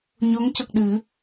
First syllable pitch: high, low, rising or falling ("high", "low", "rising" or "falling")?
rising